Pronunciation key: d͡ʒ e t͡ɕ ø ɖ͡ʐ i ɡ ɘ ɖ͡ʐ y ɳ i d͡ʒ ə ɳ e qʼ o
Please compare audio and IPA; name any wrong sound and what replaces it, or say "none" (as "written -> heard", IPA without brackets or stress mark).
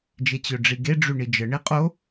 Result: ɘ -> e